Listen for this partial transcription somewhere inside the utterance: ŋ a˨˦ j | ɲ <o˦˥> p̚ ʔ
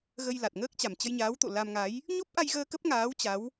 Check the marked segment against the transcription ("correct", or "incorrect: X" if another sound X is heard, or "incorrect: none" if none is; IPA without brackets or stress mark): correct